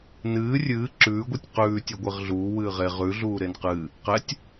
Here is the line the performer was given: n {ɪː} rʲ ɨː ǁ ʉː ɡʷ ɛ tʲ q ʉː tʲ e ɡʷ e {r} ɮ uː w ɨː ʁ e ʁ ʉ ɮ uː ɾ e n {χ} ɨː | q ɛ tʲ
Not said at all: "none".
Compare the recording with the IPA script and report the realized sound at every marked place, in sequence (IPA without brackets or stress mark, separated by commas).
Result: ɨː, ʁ, q